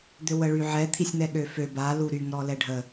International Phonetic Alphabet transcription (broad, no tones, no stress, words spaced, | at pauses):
d̪øwəɭyʕɛ t̪ʰisʲn̪ɛɠøfø ba luɾyŋ ɾɔlɛɖʱə